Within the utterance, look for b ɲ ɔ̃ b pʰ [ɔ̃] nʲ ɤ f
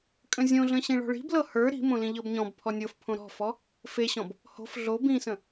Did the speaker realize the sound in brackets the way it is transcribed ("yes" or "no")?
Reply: no